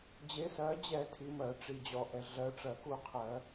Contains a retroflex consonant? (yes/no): yes